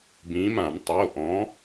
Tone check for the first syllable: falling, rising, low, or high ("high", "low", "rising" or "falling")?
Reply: rising